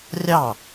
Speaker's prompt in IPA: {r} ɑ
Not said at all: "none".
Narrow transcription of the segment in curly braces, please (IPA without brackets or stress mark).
rʲ